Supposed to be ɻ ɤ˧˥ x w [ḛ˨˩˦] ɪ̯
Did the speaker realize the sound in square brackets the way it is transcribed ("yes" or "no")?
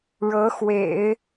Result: yes